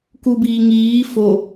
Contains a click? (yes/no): no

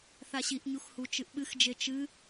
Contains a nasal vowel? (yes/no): no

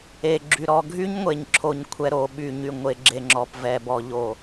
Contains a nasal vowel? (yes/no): no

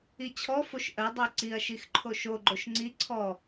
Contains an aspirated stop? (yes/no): yes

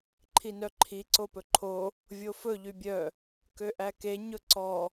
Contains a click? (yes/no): yes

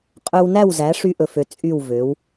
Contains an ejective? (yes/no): yes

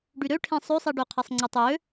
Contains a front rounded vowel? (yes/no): yes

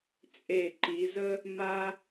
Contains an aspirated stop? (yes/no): no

